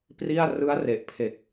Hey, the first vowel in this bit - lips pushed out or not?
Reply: no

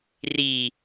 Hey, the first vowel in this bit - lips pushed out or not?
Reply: no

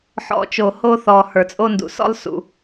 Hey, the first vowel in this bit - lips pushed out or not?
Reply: yes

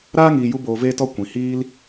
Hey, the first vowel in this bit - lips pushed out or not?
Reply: no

